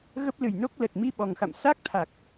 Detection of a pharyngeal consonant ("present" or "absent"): absent